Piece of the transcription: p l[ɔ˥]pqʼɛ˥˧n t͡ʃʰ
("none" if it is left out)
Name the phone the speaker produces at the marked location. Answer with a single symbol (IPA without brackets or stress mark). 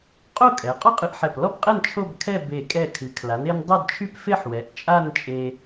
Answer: ɔ˥